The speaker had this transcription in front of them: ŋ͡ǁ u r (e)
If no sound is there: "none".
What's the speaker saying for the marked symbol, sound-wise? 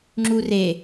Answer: e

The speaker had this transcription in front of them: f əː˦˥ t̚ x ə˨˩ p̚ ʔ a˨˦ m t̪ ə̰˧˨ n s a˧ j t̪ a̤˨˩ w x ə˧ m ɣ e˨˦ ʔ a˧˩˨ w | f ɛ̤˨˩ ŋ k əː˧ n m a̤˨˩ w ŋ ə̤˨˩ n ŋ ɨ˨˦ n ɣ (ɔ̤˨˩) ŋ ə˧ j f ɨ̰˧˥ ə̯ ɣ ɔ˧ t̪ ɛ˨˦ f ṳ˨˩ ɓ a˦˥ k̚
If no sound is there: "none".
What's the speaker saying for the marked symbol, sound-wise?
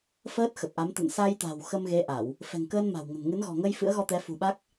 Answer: ɔ̤˨˩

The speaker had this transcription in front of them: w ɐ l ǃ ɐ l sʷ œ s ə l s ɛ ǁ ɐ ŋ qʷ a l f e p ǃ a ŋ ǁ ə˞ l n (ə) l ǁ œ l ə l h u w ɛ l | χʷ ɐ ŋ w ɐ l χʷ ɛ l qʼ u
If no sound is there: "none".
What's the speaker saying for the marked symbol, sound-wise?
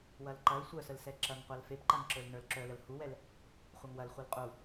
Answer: ə˞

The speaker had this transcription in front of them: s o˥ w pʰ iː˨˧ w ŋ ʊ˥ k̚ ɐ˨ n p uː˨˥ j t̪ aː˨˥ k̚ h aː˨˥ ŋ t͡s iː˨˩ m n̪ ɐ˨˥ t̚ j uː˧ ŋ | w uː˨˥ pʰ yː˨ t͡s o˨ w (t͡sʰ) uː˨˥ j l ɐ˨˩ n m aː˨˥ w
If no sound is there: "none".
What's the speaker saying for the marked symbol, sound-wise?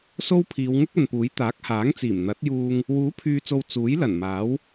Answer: t͡s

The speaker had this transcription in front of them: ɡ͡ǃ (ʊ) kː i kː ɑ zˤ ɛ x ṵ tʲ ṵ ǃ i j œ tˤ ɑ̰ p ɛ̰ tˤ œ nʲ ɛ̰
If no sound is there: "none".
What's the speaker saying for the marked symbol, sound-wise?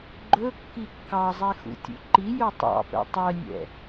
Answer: ɵ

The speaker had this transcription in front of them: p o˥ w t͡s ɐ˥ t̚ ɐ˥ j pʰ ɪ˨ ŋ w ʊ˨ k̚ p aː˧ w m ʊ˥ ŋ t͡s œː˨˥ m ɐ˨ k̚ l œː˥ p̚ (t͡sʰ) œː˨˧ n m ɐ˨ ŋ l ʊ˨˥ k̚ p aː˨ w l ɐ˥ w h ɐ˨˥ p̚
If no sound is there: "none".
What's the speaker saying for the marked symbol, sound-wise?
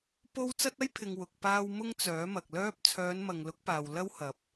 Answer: t͡sʰ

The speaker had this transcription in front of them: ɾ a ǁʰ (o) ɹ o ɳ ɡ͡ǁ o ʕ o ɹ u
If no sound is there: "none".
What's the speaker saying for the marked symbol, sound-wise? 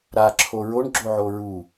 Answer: o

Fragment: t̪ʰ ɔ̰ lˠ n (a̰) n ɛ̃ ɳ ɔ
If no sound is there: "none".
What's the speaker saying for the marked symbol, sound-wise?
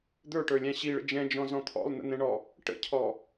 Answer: ə̰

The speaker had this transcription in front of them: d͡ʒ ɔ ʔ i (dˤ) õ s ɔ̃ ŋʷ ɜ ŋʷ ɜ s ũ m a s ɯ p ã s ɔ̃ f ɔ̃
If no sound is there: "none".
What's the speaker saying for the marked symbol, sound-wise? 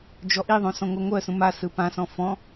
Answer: ðˤ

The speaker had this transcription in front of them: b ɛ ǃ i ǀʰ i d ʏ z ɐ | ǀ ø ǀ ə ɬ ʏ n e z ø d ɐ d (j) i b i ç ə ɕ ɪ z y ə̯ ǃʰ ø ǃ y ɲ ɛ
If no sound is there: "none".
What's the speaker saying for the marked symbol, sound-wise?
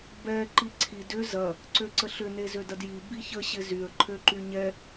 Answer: j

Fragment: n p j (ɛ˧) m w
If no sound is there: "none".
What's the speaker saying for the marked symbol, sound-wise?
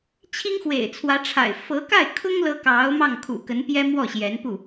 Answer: ɛ˥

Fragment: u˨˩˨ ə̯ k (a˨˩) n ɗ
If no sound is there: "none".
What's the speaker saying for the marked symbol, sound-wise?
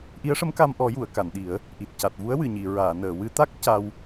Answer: a˨˩˨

